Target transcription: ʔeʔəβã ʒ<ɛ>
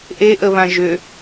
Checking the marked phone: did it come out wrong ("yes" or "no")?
yes